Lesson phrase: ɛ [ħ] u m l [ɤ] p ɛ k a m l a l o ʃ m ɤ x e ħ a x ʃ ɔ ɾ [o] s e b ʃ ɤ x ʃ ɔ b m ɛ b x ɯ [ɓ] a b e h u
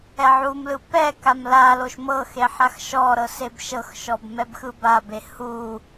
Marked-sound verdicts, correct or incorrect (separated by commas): incorrect, incorrect, incorrect, incorrect